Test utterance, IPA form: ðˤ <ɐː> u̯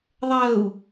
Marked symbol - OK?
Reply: yes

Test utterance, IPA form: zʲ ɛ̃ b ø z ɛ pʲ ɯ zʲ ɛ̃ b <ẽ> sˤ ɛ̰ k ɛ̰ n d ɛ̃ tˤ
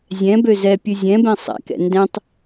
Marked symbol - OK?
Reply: yes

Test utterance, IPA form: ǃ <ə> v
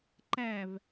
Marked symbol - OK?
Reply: no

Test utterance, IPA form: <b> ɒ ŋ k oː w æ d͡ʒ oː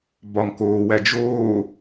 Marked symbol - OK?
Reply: yes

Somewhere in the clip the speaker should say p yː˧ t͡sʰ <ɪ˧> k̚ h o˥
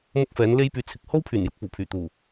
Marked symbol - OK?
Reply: yes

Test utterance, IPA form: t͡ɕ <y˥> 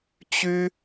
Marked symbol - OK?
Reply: yes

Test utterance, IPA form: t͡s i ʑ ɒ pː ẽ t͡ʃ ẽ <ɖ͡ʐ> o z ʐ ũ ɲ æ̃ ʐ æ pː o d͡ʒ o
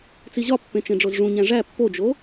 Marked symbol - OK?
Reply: yes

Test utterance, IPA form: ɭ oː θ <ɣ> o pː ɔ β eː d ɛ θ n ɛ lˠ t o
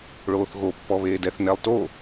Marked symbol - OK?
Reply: yes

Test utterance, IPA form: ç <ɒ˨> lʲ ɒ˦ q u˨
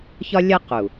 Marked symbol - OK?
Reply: no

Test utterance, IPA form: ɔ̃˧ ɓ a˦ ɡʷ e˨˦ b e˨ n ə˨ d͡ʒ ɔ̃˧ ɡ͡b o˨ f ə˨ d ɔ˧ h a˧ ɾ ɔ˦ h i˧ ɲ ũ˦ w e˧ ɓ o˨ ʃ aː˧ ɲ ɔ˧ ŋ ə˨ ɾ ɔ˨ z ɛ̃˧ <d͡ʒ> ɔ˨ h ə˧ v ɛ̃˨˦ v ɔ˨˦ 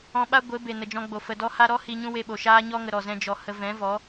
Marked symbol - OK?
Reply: yes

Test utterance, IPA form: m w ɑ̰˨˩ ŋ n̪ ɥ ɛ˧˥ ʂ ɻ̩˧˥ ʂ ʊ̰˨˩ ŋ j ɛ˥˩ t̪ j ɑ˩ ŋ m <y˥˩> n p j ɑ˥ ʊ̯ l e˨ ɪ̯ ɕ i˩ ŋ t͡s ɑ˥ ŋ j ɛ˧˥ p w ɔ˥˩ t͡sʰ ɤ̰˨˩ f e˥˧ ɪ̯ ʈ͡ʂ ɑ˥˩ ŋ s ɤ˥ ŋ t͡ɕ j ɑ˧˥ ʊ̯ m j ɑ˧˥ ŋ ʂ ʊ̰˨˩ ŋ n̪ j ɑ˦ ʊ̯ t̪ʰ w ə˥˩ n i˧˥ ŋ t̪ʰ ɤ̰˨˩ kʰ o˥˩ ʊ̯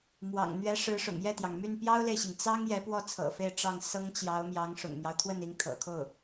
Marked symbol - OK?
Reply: yes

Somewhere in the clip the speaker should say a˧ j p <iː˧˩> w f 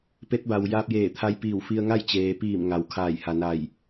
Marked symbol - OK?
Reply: yes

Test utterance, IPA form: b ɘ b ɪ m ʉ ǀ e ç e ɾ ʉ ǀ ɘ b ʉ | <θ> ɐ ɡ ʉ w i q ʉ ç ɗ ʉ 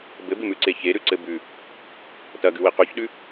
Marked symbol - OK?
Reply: no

